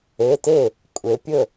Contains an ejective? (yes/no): yes